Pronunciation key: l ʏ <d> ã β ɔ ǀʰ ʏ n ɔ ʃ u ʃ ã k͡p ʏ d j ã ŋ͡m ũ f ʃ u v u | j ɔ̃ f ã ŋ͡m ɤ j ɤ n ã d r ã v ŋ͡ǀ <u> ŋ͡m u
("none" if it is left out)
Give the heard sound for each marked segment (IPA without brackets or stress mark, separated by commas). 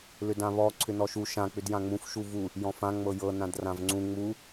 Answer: d, ũ